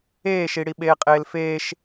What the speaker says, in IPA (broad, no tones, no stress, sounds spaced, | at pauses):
eː ʃ i ɽ i ɓ eː qʼ eː l f eː ʃ